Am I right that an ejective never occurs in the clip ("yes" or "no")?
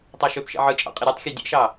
no